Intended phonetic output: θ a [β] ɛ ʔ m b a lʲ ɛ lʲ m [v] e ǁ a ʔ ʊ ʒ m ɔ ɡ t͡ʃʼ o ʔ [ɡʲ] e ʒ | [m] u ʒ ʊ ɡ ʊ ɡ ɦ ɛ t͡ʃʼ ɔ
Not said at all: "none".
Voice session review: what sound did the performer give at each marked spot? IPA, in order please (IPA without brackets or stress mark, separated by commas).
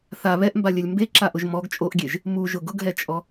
β, b, ɡʲ, m